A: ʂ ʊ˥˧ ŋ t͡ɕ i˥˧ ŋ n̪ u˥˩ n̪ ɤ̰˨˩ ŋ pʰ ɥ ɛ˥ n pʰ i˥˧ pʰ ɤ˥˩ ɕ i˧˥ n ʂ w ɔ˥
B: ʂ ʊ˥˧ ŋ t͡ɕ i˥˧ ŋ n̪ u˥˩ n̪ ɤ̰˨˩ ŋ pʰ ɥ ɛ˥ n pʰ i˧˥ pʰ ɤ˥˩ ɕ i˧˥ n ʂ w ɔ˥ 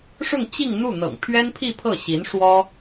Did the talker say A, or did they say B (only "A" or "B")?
A